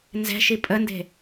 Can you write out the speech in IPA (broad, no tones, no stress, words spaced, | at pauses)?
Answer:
nzɛ̤ʃi pʼənde̤